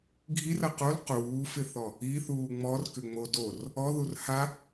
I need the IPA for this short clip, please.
ɡʱ i r ɐ q o l q uː f ɪ θ ɔ | i θ uː ŋ͡m ɔ r k ʏ ŋ͡m o d o r | ɔ ð u r h a

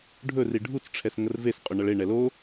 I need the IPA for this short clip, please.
ɖʱ ɵ r i ɖʱ u t͡s ʈ͡ʂʰ ɛ s ŋ ə r v e s qʼ ɵ ɳ ʌ ɭ e ɳ ɛ l o

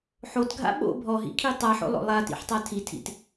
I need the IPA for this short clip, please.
ħ o t ɡʱ a̰ ɓ o̰ bʱ ɔ ɦ ḭ kʰ i tˤ a ħ o̰ lˠ o̰ lˠ a t ḭ ħ tˤ a tʰ i tʰ ḭ t

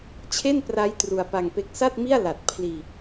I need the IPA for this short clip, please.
t͡ɕʰ e˥˩ n p r a˦˥ j t r u˧ a̯ p a˧ ŋ p e˦˥ k̚ s a˥˩ t̚ m i˥˩ a̯ l a˨˩ t̚ pʰ l iː˧

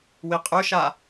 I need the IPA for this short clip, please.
w i qʼ ʊ ʃ a

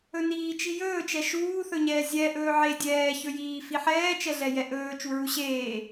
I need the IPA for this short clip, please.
ɵ n iː t͡ʃ i j ɵː t͡ʃ ɛ ʃ uː θ ɵ ɲ ɛː zʲ ɛ ʔ ɵː ʕ e dʲ ɛː ç ɵ j iː f i ħ ɛː t͡ʃ ɛ ɮ ɛ j ɛ ʔ ɵː t͡ʃ u ɹ u ɕ eː

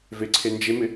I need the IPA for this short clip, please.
v e ǀʰ e n d͡ʒ e m ɪ

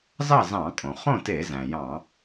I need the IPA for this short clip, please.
z ɑ˥˨ z ɑ̃˧˩˧ kʼ õ˩ χ õ˥˨ t e˧˩˧ z æ̃˩ j ɑ̃˧˩˧

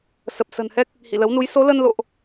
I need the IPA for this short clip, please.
s ə˨˩ p̚ s ə̤˨˩ n h ɛ˦˥ k̚ | h ḭ˧˨ l ə˨˦ w n u˨˦ j s o˨˦ l ə˧ n l o̰˧˨ ʔ

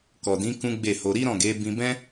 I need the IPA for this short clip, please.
k ɔ˨ d ĩ˨˦ k ũ˦ ɡ͡b e˦˨ h o˧ ɾ i˦ ɾ ɔ̃˦˨ ɡ e˨˦ b ĩ˧ b ɛ̃˦

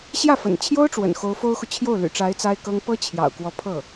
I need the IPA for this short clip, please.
ɕ j ä˥˩ f ə̰˨˩ n t͡ɕʰ j o˥ ʊ̯ ʈ͡ʂ w ə̰˨˩ n x o˧˥ ʊ̯ f o˥ ʊ̯ x u˨ t͡ɕʰ j o˥˩ ʊ̯ l y̰˨˩ ʈ͡ʂ a˧˥ ɪ̯ t͡s a˥ ɪ̯ k ɤ˥ ŋ p ɤ˥ t͡ɕʰ j ɑ̰˨˩ ʊ̯ k w ɔ˧˥ pʰ ɤ˥˩

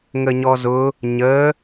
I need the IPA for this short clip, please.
ŋ ə ɲ ɔ z ʊ | ɲ ə

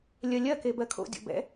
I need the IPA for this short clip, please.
lʲ ɜ lʲ ɜ k e b ɜ kʰ o̰ dʲ o̰ b ɛ̰

